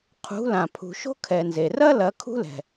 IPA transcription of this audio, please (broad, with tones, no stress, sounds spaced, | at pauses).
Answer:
qʰ ṳ˨˦ l ã˨ pʰ ṳ˨ ʃ o̤˦ kʰ ɛ˨ n z e˨ r ɐ˦ l ɐ˨˦ kʰ ṳ˦ l ɛ̤˨